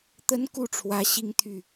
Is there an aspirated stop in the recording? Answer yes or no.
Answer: yes